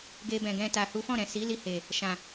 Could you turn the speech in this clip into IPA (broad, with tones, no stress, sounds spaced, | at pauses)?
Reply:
ɡ e˧ b ɛ̃˨ ɡ ɛ̃˧ t a˨ h u˨˦ f ɔ̃˦˨ ɾ ɛ̃˨ s i˨˦ l i˧ h e˨ | ʃ ã˨